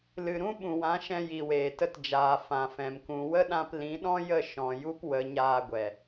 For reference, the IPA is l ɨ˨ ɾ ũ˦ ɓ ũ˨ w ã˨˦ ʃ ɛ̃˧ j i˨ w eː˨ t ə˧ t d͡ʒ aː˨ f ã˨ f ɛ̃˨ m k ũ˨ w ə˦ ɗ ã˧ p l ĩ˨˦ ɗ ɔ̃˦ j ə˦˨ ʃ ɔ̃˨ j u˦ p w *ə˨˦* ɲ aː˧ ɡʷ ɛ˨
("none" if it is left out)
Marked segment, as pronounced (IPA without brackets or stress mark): ə˨˦